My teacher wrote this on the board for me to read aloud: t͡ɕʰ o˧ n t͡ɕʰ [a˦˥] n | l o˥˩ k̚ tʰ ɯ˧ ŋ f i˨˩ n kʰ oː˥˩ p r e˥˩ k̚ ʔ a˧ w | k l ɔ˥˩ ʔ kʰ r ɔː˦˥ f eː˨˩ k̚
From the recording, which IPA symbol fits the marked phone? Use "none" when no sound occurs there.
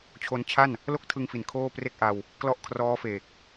a˥˩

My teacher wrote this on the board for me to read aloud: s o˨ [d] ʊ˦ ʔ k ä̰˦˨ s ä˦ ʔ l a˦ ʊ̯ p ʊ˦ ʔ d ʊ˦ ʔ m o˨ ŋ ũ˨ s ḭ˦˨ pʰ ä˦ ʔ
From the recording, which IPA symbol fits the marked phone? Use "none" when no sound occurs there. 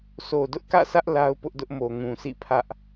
d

